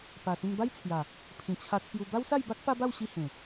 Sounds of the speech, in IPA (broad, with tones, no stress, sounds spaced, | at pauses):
p a˨˩ s ĩ˧ ŋ b a˦ j t͡sʰ j a˨˩ | pʰ ĩ˨˩ t͡ɕʰ a˧ t͡sʰ j u˧ b a˦ w s a˥˧ j b a˦ k̚ p a˦ b a˥˧ w ɕ i˧ h ẽ˨˩